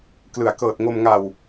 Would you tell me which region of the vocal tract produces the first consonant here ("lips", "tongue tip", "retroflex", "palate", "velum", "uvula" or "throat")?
velum